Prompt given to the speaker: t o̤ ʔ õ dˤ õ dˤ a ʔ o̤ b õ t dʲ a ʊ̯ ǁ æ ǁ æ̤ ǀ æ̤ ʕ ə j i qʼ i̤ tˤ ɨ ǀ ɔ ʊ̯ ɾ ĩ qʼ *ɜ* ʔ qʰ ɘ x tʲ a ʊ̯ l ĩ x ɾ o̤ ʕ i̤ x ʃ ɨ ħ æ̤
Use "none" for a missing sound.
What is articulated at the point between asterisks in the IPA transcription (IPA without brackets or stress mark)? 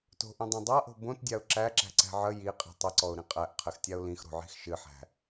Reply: æ